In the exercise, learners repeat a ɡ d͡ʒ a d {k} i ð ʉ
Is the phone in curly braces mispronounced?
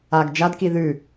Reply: no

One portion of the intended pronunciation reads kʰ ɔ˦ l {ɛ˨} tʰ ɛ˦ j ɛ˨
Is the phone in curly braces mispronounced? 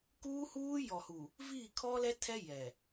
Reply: yes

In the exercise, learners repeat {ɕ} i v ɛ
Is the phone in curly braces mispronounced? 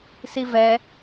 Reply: yes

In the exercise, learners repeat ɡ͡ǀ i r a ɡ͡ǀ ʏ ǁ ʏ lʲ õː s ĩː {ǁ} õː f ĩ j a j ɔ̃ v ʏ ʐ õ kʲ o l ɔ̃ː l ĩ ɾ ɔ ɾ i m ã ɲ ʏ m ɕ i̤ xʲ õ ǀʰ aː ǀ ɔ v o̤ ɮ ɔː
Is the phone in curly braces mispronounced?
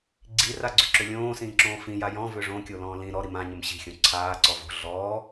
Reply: no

